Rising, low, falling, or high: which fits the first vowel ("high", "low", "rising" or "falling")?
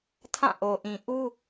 falling